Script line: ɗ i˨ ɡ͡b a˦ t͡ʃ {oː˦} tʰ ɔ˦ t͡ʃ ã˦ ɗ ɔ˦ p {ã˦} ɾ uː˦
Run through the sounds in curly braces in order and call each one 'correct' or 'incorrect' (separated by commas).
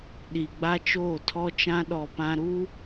incorrect, correct